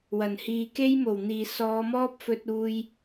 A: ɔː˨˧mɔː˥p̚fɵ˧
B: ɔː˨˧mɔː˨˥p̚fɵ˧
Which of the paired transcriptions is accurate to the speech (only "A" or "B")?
A